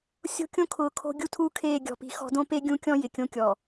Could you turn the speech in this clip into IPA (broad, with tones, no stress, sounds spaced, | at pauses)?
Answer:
sʲ o̤˦ kʲ õ˦ kʰ ʊː˨ kʰ o̤˦ ɡʲ u˦ tʰ uː˦ kʰ eː˦˨ ɡʲ ɔ̤˨ p i̤˨˦ x ɔ̤˦ d õ˦ p e˦ ɡʲ ũ˦ kʲ ɔ̃˦ j ɪ˨ kʲ õ˦ kʲ ɔ˨